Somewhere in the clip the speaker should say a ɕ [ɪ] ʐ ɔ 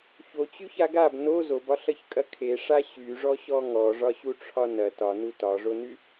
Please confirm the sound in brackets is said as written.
no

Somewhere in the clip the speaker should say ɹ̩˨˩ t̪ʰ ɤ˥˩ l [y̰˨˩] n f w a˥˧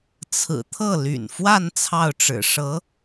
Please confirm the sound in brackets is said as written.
yes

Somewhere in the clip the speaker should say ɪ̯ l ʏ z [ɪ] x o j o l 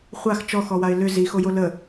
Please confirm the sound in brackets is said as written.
no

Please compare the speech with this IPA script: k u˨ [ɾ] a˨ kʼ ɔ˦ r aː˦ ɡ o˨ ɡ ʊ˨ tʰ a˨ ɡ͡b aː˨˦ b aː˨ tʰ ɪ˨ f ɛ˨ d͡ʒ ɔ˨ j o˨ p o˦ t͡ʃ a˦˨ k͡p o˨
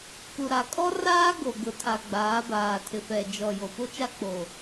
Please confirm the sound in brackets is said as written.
yes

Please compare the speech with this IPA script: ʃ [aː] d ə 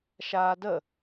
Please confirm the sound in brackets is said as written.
yes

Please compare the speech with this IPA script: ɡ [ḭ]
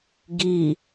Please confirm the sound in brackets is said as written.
no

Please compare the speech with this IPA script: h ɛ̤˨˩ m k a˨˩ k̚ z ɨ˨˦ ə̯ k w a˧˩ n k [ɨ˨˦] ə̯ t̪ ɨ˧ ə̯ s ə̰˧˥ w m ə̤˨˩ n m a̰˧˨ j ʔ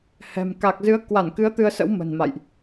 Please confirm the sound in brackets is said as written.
yes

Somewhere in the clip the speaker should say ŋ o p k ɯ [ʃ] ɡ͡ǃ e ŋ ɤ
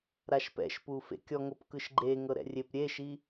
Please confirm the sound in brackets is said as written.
yes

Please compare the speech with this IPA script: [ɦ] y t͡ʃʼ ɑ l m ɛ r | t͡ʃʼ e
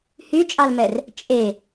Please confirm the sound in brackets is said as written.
no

